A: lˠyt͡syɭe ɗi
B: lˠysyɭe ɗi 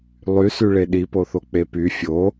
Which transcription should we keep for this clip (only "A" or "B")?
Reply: B